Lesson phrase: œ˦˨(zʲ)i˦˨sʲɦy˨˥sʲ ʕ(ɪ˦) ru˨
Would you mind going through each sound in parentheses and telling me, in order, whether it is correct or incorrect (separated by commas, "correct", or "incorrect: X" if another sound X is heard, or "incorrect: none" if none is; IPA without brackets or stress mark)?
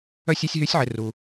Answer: incorrect: sʲ, incorrect: ɪ˨